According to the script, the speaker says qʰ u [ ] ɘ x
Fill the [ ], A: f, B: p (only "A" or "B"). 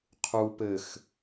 B